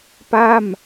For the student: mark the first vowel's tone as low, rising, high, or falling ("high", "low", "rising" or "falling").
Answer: falling